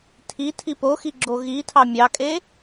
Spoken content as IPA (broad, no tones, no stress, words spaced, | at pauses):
tʰi tʰipoxi ɡ͡ǁoɣitʰɑ mʲɑkʼe